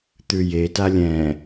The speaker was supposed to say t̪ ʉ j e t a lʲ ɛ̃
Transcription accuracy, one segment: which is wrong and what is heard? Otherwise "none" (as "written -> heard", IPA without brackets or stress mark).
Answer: none